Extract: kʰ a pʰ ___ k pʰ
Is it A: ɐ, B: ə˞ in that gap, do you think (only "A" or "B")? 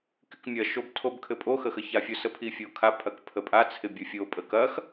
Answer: A